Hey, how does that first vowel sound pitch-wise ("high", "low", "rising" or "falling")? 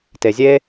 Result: low